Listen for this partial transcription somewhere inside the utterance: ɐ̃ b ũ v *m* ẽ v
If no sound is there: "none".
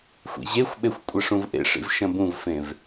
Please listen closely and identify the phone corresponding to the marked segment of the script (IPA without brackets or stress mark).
f